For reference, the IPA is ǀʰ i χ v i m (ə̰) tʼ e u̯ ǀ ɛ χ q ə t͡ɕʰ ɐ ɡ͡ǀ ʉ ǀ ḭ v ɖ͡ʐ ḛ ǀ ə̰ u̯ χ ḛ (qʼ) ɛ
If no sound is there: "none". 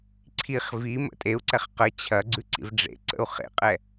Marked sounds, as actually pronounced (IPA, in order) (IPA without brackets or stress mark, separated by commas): ə̰, qʼ